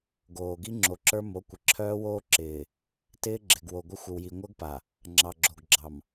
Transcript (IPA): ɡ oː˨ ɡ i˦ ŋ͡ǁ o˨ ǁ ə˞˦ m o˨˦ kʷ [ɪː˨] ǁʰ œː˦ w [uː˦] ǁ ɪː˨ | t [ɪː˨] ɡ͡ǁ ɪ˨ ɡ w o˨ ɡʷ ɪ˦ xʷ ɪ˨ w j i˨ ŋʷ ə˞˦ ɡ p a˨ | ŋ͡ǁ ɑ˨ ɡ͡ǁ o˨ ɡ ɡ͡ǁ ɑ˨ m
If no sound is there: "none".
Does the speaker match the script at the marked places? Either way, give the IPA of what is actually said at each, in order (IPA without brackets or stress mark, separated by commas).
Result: ɪ˨, oː˦, ɪː˦